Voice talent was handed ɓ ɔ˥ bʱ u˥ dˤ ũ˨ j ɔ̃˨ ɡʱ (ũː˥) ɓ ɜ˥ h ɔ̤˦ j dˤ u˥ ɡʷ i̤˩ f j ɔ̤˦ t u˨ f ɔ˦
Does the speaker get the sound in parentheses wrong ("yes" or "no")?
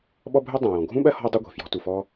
yes